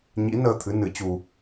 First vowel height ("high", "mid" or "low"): high